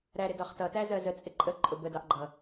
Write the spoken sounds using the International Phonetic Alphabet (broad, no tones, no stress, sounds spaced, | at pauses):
ɾ æ ɾ ɪ d ɒ χ t ʌ t æ z ɜ z ə t͡sʼ ɪ ǃʼ ə ǃʼ ʊ b ə d ɑ ʔ ɡ͡ǃ ʌ